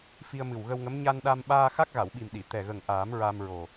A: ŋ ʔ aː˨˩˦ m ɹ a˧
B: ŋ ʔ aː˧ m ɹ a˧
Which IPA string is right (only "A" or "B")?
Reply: A